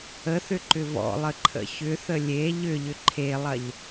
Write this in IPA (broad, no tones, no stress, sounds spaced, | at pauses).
ə θ ʏ ǃ ʏ v ɔ̰ lˠ ə ǃʰ ə̰ ç ʏ θ ə lʲ e ʎ ʏ ʎ ʏ ǃʰ e lˠ ɐ ʎ